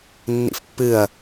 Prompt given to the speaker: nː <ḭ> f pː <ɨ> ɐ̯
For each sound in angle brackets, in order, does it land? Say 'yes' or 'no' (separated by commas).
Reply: yes, yes